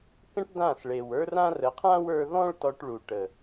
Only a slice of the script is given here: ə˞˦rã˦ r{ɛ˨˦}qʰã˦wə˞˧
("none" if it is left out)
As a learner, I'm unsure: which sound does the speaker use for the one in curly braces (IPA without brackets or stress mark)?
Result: ə˨˦